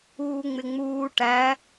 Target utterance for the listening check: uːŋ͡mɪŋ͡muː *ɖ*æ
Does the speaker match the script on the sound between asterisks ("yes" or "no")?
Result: no